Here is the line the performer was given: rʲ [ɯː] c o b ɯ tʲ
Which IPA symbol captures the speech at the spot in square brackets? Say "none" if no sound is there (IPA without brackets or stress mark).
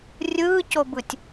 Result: ɯː